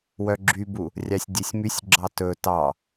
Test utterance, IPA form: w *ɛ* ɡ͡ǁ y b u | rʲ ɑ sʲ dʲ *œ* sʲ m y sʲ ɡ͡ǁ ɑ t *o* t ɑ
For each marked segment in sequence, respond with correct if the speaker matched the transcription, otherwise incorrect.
incorrect: œ, incorrect: ɛ, incorrect: ɵ

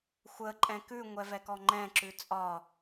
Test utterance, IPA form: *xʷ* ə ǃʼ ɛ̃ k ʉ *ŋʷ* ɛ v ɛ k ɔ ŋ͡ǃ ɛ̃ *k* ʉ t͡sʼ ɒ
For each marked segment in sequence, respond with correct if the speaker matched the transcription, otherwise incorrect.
correct, correct, incorrect: ǁ

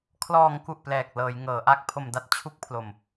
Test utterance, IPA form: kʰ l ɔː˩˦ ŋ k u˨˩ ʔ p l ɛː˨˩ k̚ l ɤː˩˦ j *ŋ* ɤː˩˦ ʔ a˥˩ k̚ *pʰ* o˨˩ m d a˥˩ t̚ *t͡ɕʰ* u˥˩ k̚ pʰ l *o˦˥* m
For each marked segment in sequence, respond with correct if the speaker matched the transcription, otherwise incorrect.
correct, correct, correct, incorrect: o˨˩

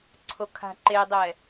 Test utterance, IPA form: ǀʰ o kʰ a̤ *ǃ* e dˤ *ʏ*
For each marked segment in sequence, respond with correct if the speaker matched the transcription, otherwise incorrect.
correct, incorrect: ɛ

